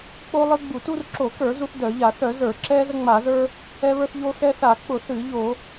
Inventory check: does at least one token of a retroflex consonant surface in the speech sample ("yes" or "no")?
no